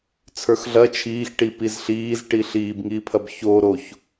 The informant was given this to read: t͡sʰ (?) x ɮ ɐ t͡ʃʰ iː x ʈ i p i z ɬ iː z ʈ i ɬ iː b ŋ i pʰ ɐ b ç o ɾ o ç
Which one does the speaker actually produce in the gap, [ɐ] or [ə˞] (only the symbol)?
ə˞